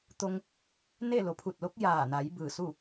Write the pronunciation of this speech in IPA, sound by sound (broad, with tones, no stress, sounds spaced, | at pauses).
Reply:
t̪ o˧ ŋ | n e˥˨ l o˩˧ pʰ u˧˩ t̚ l o˧˥ k̚ j aː˧˩ n a˩˧ j b ɯː˧˩ s u˥˨